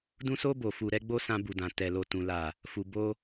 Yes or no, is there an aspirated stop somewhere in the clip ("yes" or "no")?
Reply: no